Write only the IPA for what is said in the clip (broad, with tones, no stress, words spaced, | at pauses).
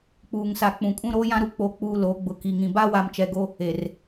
k͡puː˨ŋsa˨ k͡pũ˨kʼũ˦ ɾoː˦jã˦ɾu˦k͡po˨˦ k͡puː˨ loː˨˦ɡ͡bʊ˨ ki˨ŋĩ˨ ba˦wa˨mt͡ʃɛ˨ɡo˦ | e˨r